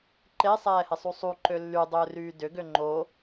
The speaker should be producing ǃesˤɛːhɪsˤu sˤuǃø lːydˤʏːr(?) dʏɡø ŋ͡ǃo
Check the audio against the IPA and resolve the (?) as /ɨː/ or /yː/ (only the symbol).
yː